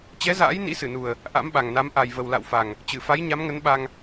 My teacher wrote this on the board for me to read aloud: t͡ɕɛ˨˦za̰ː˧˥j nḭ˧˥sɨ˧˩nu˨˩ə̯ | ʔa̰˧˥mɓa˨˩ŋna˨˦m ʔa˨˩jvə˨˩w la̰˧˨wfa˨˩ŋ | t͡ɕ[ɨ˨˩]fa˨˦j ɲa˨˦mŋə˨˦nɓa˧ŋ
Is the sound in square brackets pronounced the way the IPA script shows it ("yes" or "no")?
no